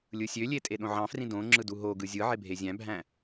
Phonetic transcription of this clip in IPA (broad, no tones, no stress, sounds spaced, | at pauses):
lʲ ɯ sʲ ø lʲ e tʼ e ɗ õ ʕ ɑ̃ f r ĩ d õ ŋ͡ǁ ɯ d u ɦ o ɡ ɯ zʲ ɯ ʕ e bʱ e zʲ æ̃ bʱ æ̃